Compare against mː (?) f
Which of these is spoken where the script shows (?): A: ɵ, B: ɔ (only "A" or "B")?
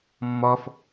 B